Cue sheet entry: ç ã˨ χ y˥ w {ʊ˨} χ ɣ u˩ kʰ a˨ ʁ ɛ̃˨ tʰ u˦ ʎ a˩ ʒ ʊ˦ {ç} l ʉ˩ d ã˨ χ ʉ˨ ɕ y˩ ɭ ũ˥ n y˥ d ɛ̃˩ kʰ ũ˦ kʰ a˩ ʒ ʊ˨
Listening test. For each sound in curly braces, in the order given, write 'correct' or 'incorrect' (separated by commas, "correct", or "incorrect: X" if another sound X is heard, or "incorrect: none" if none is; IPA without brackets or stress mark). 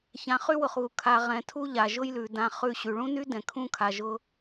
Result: correct, incorrect: j